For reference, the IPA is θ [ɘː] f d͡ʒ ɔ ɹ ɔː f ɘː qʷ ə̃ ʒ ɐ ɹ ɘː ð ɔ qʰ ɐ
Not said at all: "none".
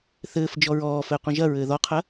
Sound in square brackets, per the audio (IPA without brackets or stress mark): ɘː